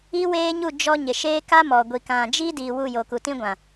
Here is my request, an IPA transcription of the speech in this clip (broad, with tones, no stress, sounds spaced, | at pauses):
i˦ w eː˦ ɲ u˦˨ d͡ʒ ɔ˦ ɲ ɪ˨ ʃ eː˦ k a˦ m ɔ˨ ɡʷ i˨ k ã˨ d͡ʒ i˦ d iː˨ w u˦˨ j o˨ k u˨ t ĩ˦ ɡʷ ã˨